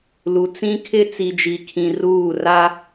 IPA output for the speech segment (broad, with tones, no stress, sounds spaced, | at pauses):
l u˨ t͡s ĩ˦ kʰ ɪ˦ t͡s i˨ d͡ʒ i˨ kʰ ĩ˨ r uː˦˨ r a˦